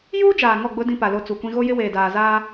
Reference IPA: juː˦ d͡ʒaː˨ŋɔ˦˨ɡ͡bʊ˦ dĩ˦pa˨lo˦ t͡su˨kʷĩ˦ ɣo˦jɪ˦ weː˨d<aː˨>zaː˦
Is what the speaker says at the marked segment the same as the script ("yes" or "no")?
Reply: yes